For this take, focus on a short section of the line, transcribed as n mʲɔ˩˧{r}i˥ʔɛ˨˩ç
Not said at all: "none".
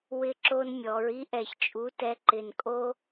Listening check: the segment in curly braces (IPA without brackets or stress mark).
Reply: ɹ